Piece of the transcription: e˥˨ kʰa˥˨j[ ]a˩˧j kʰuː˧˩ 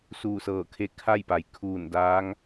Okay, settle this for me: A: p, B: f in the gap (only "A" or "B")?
A